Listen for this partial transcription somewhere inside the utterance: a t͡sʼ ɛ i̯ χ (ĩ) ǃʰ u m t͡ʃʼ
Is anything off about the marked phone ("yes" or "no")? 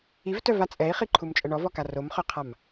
yes